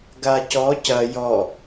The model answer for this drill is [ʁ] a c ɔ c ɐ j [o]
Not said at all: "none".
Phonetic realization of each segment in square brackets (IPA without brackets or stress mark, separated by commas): ɡ, ɔ